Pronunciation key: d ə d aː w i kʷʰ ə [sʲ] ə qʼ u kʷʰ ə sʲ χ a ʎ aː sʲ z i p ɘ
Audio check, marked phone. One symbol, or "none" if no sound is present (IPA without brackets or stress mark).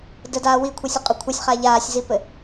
sʲ